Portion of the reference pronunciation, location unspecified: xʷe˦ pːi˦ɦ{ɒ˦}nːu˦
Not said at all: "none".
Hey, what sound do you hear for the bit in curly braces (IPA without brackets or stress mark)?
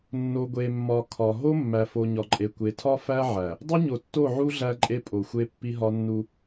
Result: ɒ˦